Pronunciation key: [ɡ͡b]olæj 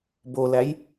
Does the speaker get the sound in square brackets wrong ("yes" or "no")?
yes